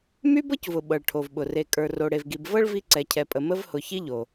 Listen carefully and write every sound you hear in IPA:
m y˦ b ɤ˦ c v ʊ˩ ɓ ɤ˩ ɭ ʈʰ o˩ v ɓ ʊ˩ r e˨ kʼ ə˞˨ r o˨ ɽ e˨ v ɡ i˨ b v ɤ˥ ɭ v i˦ ǀ ɛ˨ cʰ ɛ˨ pʼ ə˨ m ə˦ v h ʊ˨ ç i˦ ʎ o˩

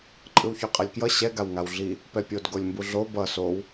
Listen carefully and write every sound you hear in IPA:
ǃʼ ɯ w ç o qʼ ɛ lʲ k j ʌ ɕ ɛ ɡ a w ŋ a w ɮ i | p ɛ pʲ o d ɡ o lʲ m b u ɮ o b ʌ s o w

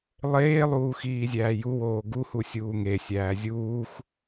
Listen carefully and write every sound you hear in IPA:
lˠ eː lˠ uː x iː zʲ æː j u w oː ɡ u h u sʲ uː ŋ e sʲ æː zʲ uː x

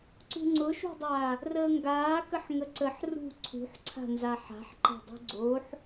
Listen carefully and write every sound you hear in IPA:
ǀ ṳ ŋ͡ǀ ʊ ʃ ṳ dˤ aː | r əː ŋ ɡ aː k ə ħ ŋ ə ǀ ə ħ r ṳ ǀʰ ṳ ħ ǀʰ a̤ n z a ħ a̤ ħ ǃ a̤ dˤ ṳ ɡ͡ǀ oː ħ

